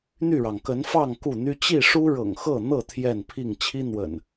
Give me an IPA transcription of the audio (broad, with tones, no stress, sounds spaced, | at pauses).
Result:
n̪ y˥˨ ɻ ɑ˩ ŋ k ə˨˦ n f ɑ˥˨ ŋ k u˥˨ n̪ y˦ t͡ɕ i˥˨ ʂ u˦ ɻ ɤ̰˨˩ ŋ x ɤ˥˨ n̪ ɤ˥˨ t̪ʰ j ɛ˥˨ n pʰ i˥˨ ŋ t͡ɕʰ i˦ n̪ w ə̰˨˩ n